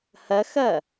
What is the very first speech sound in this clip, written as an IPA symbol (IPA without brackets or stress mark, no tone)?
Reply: h